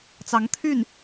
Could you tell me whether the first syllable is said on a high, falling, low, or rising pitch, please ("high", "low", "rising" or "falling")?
rising